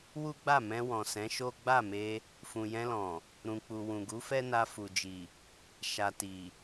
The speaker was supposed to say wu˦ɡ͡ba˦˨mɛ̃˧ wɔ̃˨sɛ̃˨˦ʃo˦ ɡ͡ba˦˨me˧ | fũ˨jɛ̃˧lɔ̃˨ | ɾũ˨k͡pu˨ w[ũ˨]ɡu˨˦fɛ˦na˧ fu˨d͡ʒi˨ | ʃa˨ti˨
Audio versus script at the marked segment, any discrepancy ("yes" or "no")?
no